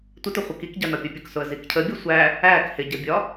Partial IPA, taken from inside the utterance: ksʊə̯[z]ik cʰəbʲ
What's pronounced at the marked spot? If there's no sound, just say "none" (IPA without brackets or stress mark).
z